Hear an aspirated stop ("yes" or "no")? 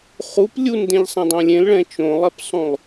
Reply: no